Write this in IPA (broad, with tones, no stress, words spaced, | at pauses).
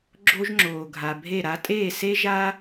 ɡ͡ǁo˧ʒŋ͡ǁoː˩ ɡʱa˩bʱe˥˩ɾa˥ tʼeː˥˩se˥ʒaː˥